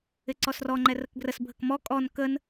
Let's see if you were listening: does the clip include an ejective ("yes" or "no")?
yes